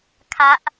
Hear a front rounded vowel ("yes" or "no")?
no